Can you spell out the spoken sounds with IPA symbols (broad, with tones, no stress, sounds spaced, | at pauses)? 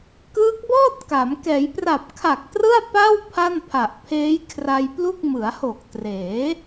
k ɯː˦˥ k̚ b ɔː˥˩ t̚ k a˩˦ m k ɛː˩˦ j p r a˨˩ p̚ kʰ a˨˩ k̚ t r ɯ˥˩ a̯ p a˥˩ w pʰ a˥˩ n pʰ a˨˩ ʔ pʰ eː˦˥ j kʰ r a˧ j p l u˥˩ k̚ m ɯ˩˦ a̯ h o˨˩ k̚ t r eː˩˦